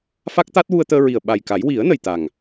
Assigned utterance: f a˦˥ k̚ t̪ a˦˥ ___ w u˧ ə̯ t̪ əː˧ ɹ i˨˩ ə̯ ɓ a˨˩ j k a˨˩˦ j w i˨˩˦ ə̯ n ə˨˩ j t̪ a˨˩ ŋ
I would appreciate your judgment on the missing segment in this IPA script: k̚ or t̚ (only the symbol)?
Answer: t̚